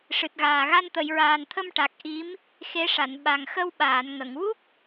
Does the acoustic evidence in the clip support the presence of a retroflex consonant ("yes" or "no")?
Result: yes